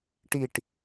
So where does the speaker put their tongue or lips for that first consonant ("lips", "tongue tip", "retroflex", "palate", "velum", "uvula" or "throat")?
retroflex